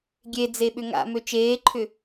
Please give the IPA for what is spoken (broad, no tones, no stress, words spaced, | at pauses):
ɡʲe d͡zeɓʏŋa̰ møt͡ʃeːǃʰʏ